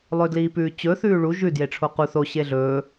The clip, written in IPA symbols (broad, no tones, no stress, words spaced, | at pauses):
lˠɵdliːpʉːt͡ɕɵ θʉːɭu ʒʉ djeʈ͡ʂʰoqu θo ɕeɮɵː